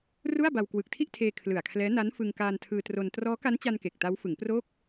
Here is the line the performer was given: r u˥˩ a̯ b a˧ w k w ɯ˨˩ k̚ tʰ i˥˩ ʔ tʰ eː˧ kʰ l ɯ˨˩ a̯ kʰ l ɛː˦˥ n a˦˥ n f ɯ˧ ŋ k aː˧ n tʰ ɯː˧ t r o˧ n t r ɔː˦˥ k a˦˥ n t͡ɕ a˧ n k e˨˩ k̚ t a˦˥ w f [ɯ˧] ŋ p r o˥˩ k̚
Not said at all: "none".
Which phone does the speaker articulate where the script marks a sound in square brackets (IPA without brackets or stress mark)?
ɯ˩˦